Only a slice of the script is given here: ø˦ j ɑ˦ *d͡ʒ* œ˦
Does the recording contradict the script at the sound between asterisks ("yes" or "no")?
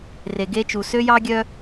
yes